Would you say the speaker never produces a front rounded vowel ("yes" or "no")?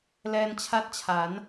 yes